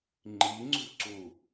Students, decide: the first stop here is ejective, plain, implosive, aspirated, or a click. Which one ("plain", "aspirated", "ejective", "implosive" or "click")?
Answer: click